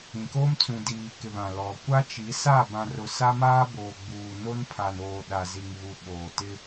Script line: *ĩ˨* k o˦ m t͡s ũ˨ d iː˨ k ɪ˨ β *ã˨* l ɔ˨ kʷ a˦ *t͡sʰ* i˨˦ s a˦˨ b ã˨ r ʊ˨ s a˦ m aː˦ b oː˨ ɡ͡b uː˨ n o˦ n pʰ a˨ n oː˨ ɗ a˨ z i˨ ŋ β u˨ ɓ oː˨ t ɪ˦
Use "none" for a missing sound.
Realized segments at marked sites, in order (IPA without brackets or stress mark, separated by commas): ĩ˨, ã˨, t͡ʃ